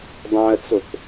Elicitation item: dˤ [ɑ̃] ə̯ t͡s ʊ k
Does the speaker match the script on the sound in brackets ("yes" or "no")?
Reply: yes